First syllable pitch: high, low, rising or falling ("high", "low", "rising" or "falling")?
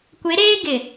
rising